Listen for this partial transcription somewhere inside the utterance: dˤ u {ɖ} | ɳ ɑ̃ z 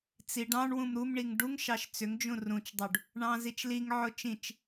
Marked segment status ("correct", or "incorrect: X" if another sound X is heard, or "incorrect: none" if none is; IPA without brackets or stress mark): correct